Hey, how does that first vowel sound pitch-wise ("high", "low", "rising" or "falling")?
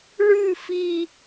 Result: falling